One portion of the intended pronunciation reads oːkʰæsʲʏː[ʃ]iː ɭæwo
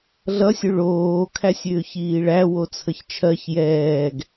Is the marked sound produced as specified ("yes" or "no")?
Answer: no